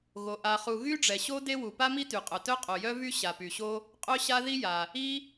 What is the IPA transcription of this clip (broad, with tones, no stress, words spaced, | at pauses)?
ɣo˩ ʔa˩χu˩ ɣy˥ɖ͡ʐɛ˩ɕo˥ de˥wu˩ pa˥mi˥ty˩qʼœ˩ tœ˥qʼo˩jœ˥vy˥ ɕa˩py˩ɕo˥ | qʼœ˥ɕa˥ ði˥ja˩ | i˥